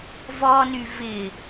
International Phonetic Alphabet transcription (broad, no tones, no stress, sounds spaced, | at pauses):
v ɔ n y v ɪ